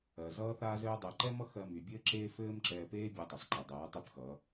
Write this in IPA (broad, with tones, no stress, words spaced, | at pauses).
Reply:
ɜ˨ zʌː˦θaː˦zɘː˦dˤɛ˧ ǃɛ˦mʌ˦ xɜ˧my˨ bʲɘː˦ǁeː˦ fɘː˦m ǁɛː˧peː˦ bʲɜ˧tˤɘ˨sˤǃʌ˨dˤɜː˨˦ tˤy˦pxʌː˨˦